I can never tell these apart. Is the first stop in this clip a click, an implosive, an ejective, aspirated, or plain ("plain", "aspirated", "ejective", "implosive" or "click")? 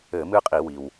ejective